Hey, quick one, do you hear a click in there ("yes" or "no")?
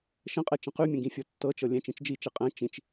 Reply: no